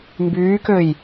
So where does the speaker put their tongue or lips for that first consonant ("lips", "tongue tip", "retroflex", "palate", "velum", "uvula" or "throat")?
lips